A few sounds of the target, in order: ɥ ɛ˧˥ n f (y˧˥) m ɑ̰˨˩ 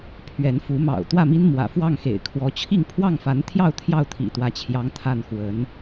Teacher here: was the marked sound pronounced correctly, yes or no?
no